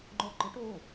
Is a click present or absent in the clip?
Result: present